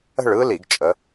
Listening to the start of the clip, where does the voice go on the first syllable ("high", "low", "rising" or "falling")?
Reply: falling